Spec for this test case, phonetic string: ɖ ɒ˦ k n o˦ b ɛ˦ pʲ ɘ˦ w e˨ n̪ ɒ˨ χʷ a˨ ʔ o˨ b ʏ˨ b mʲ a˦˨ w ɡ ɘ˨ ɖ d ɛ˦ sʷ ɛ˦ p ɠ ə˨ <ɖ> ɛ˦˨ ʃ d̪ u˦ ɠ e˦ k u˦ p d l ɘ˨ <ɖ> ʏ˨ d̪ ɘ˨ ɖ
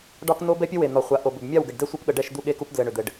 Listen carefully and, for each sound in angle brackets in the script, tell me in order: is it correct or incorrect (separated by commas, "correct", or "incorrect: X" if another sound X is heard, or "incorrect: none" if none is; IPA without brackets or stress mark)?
correct, incorrect: ɳ